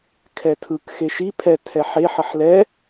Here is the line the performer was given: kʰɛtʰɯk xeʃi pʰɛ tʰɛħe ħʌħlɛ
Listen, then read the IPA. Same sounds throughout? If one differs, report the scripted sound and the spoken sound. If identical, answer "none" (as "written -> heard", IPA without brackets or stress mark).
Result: none